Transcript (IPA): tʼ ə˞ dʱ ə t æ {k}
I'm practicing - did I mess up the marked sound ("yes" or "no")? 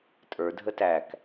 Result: no